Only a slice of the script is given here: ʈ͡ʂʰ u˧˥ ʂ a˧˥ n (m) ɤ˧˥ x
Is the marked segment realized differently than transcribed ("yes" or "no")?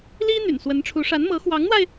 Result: no